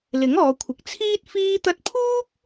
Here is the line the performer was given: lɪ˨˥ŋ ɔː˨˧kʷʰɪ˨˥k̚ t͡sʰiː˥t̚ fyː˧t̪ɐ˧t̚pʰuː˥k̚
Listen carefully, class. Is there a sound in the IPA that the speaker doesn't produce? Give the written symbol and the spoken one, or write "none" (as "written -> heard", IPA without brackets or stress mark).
yː˧ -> iː˧